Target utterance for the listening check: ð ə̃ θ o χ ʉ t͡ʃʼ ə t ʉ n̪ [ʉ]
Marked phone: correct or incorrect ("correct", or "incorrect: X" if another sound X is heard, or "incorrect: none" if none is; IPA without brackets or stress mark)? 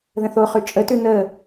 incorrect: ə